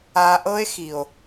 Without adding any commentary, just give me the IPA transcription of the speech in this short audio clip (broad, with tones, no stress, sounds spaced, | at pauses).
a˧ ʔ ɤ˦ e̯ x i˨ o̯